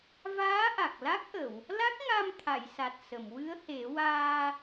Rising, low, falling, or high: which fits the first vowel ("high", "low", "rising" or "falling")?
rising